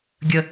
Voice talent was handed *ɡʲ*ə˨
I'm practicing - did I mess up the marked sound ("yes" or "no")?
no